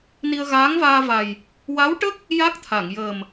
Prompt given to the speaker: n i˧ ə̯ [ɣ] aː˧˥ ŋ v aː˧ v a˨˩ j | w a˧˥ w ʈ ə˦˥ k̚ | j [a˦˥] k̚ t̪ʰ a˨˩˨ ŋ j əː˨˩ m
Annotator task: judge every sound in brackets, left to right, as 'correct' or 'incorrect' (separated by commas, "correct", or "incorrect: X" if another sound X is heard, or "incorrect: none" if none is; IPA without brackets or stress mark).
correct, correct